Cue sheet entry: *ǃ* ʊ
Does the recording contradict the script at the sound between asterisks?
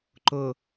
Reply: no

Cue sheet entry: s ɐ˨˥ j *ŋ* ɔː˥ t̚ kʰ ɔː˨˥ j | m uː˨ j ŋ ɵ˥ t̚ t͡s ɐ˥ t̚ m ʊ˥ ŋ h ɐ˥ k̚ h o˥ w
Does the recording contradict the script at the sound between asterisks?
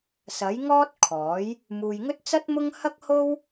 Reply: no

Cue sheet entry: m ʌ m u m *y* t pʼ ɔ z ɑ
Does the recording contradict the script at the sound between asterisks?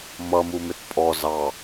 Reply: yes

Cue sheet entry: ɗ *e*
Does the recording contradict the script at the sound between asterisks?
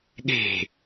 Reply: yes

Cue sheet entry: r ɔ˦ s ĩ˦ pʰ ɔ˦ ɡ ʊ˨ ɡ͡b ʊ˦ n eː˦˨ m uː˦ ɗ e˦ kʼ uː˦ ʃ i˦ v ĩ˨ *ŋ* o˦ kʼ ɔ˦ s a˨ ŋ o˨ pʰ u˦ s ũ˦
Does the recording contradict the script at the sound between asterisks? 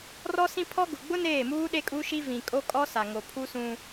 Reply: yes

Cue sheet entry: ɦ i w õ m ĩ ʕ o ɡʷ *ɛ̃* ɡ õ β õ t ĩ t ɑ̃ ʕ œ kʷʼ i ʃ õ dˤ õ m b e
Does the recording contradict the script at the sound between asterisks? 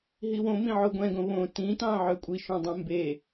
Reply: no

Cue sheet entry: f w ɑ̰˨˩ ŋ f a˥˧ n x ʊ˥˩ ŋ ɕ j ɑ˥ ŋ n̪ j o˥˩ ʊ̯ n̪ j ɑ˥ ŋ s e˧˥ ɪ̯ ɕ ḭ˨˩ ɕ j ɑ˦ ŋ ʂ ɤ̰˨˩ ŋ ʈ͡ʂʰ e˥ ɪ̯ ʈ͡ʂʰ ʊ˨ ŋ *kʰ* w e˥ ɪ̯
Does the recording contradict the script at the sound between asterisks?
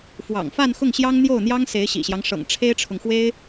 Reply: yes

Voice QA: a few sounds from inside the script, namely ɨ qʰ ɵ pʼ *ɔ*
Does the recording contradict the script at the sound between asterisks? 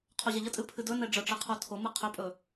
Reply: yes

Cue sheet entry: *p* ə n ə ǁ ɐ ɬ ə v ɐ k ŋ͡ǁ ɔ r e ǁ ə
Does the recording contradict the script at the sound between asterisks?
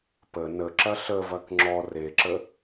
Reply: no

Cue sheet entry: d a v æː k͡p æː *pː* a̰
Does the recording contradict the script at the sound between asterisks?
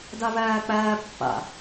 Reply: no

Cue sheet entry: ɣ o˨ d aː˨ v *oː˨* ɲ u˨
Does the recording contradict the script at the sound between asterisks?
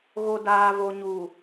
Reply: yes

